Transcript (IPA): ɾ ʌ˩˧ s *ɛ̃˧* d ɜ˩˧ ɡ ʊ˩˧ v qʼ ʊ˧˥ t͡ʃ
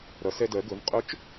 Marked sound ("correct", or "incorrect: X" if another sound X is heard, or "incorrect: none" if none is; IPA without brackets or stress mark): incorrect: ɛ˧